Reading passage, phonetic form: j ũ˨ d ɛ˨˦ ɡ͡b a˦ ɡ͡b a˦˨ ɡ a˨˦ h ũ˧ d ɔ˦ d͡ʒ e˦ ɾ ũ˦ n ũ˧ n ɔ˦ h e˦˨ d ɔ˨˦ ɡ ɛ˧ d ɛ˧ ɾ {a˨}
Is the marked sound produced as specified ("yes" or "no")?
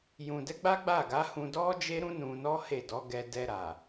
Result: yes